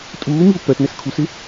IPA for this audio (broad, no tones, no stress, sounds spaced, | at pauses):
tʼ uː m i u̯ p ɜ t n ɛ s kʰ u s ɪ